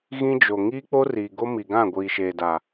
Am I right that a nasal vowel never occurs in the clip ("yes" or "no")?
no